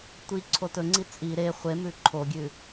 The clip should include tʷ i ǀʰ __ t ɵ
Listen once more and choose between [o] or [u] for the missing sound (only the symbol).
o